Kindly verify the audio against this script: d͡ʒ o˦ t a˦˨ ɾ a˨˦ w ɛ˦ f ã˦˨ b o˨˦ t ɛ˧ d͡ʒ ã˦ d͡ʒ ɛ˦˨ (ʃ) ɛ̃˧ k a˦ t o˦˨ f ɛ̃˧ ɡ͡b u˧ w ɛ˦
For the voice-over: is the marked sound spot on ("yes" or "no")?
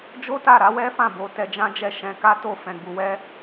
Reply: yes